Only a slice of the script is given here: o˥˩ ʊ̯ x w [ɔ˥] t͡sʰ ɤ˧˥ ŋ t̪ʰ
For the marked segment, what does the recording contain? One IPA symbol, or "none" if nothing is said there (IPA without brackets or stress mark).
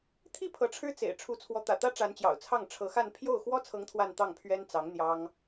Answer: ɔ˥